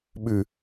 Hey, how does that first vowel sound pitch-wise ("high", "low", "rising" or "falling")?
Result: low